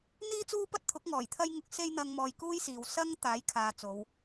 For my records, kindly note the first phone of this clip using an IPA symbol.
n̪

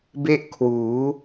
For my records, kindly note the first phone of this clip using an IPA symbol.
b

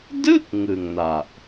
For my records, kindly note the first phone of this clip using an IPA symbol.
d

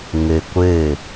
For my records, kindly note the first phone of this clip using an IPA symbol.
ŋ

